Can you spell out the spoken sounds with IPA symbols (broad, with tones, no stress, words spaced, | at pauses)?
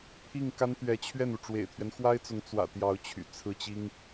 pʰi˥˩ŋka˥nt̪ɥɛ˧˥ t͡ɕʰɥɛ˥˩nu˩ ʈ͡ʂwḛ˨˩ɪ̯t̪ʰɥɛ˦nxwa˥ɪ̯t͡sʊ˧˥ŋ t͡swä̰˨˩ t̪jɑ˧˥ʊ̯t͡ɕʰy̰˨˩ t͡sʰɹ̩˥˩t͡ɕi˥ŋ